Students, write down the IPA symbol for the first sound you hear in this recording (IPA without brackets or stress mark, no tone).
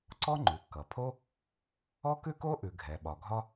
ǀ